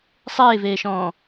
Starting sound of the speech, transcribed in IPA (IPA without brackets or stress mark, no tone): sˤ